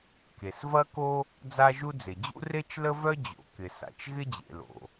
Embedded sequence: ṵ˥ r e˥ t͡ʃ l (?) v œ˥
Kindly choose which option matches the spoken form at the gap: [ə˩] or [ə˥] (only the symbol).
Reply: ə˥